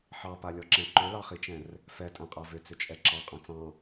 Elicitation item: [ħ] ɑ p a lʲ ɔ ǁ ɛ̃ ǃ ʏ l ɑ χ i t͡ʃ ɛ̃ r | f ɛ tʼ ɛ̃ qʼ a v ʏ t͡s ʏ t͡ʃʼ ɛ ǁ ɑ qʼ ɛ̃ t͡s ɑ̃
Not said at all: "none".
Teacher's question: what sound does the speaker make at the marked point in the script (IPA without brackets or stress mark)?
ħ